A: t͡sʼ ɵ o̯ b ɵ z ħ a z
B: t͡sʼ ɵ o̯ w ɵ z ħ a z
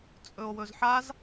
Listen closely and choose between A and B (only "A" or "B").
B